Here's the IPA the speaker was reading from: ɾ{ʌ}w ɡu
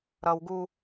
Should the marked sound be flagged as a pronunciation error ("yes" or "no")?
no